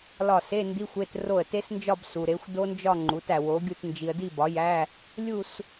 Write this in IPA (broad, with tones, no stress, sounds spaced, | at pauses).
l ɒ˥˩ s e˧˥˧ n d i˧˥˧ xʷ e˧˥˧ t r o˥˩ ə̯ t e˦˥ s n d͡ʒ ɒ˥˧ b s u˨ ɾ e˩˥ xʷ d o˦˥ n d͡ʒ ɒ˥˧ ŋ͡ǃ u˩˥ t æ˨ w o˩˥ ɡʲ u˥˩ t n d͡ʒ i˨ ə̯ d i˥˩ b ɒ˩˥ j æ˧˥˧ | lʲ u˥˧ s